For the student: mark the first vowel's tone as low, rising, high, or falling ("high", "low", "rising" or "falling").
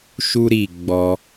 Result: high